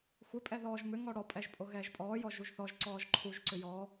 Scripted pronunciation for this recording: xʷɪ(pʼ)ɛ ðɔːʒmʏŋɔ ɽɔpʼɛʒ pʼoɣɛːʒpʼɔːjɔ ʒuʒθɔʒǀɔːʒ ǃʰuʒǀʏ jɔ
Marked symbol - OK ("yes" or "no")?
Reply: yes